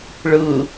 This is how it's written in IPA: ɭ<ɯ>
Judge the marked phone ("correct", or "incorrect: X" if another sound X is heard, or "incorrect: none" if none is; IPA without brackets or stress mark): correct